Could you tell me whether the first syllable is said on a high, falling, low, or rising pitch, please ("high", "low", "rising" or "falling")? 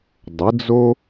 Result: rising